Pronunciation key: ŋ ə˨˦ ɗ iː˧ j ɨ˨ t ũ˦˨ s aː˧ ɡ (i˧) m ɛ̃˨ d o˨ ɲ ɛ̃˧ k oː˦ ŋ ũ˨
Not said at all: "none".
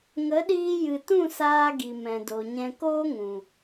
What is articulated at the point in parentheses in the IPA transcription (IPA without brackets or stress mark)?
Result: i˨